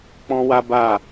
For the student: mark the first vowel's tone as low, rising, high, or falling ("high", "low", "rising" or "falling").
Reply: high